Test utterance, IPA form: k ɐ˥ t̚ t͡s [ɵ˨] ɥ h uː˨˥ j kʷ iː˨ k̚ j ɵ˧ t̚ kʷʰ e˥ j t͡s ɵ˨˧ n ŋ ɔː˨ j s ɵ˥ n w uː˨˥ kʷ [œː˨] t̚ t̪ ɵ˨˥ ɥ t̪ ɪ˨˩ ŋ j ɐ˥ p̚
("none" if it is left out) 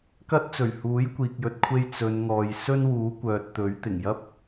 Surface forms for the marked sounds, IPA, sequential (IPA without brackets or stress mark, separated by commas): ɵ˨˩, œː˨